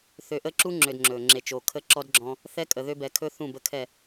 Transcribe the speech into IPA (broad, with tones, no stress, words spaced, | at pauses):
θø˨ʔə˦ǁu˦ ŋ͡ǁø˨d ŋ͡ǁɵ˨ ŋ͡ǁe˨t͡ʃo˨kʰə˦ǁɔ˦d ɡ͡ǁɔ̃˦ | θɛ˦kʼə˨ ðø˦bɛ˨˦kʰɵ˦ θũ˦˨bə˦kʰɛ˦˨